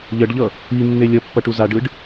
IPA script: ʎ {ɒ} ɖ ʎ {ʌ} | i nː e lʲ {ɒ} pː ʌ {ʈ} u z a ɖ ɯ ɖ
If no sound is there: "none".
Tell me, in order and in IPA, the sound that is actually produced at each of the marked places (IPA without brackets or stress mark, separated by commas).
ʌ, ʌ, ʌ, ʈ